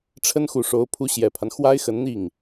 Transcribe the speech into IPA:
ʈ͡ʂʰ ə˥ n x u˨˩ ʂ o˧˥ ʊ̯ pʰ u˧˥ ɕ j ɛ˨˩ pʰ a˦ n x w a˥ ɪ̯ x ə˧˥ n n̪ i˥˩ ŋ

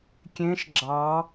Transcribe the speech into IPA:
kʲ ẽ ʃ ɡ͡ǁ ɑ

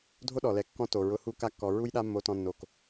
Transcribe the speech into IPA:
dʱ o˦ ɗ ɔ˨ l ɛ˨ kː ɔ̃˦ t o˨ ɹ ʊ˧ h u˦ k a˧ kː ɔ˨ ɹ u˧ j ɗ a˧ mː o˧ t ɔ̃˧ nː o˨ k

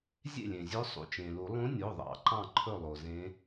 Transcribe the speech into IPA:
zʲ ḛ˥˩ lʲ ẽ˩ zʲ ɵ˧˥ sˤ ṵ˩˧˩ t͡ʃ ẽ˩ l u˨˩˦ lˠ ũ˧˥ nʲ o˩˧˩ ðˤ ɑ̰˨˩˦ ǃ ɑ̃˥˩ ǃʰ ɵ˥˩ lˠ o˩ z ẽ˧˥

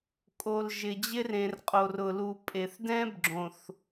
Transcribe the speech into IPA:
kʼ o˨ l ʒ ɪ˨ d͡ʑ ɪ˦ r ẽ˨ r qʼ o˨ r ʊ˨ l u˨ pʼ e˨ θ d ɛ̃˦ b ɡ͡ǁ õ˨ θ

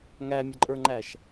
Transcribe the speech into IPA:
ŋ æ mʲ ʌ ǃʼ ə˞ ŋ͡ǃ æ ʃ

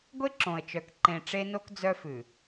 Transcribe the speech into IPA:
ɡʷ e˦ ǁ õ˨ ə̯ t͡ʃ œ˨ k ǃ ẽ˨ ʈ͡ʂ e˦ n o˦ k d͡z œ˦ f ʉ˨

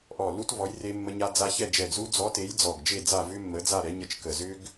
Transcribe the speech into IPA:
ʔ ɔ˧˩ l u˦˥ t v ɔ˨˥ j r e˦˥ mː ə˦˥ ɲ a˦˥ d͡z a˦˥ ç ɛ˥˨ d͡ʒ ɛ˧˩ ɡ z u˦˥ d͡z ɔ˨˥ t e˨˥ j d͡z ɔ˧˩ ɡ d͡ʒ e˥˨ d͡z a˥˨ v ʏ˦˥ mː ə˨˥ d͡z a˥˨ ɾ ɛ˨˥ ɲ ə˦˥ t͡ʃ k ə˧˩ z ʏ˦˥ ɡ

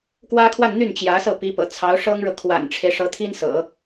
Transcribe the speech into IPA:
k w ä˥ kʰ w a˥˧ n n̪ y˥˩ n t͡ɕ j ä˧˥ s ɤ˥˩ p i˧˥ p ɤ̰˨˩ t͡sʰ ɑ˧˥ ʊ̯ ʂ ɤ˥ ŋ ɻ ɤ˨ kʰ w a̰˨˩ n ʈ͡ʂʰ e˦ ɪ̯ ʂ ɤ˧˥ t̪ʰ i˥ n s ɤ̰˨˩˦

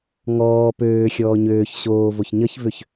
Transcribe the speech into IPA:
ŋ ɔː p øː xʲ ɔː ɲ øː ç ɕ oː v o ç ɲ ʌ ç v ø ç

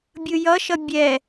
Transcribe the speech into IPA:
bʲ ɯ j ʌ ʃ ʌ bʲ ɛ

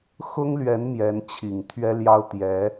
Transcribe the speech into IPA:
x ʊ˥ ŋ l ɥ ɛ˧˥ n m j ɛ˧˥ n t͡ɕʰ i˨˩ ŋ t̪ʰ ɥ ɛ˥ l j ɑ˥ ʊ̯ t̪ j ɛ˧˥

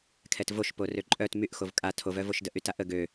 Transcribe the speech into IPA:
kʰ ɛ t v o ʃ p o r ø ǃʼ œ t m y ʔ x o v kʼ a tʰ o v œ v o ʃ d ə ʔ y t a ʔ ə ɡ ø

